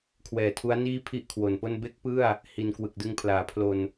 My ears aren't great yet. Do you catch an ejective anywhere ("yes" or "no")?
no